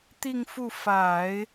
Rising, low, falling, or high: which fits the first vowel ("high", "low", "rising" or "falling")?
falling